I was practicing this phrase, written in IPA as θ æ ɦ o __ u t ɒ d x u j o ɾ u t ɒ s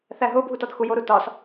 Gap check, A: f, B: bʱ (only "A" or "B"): B